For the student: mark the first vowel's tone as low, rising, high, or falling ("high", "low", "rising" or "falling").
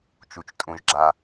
low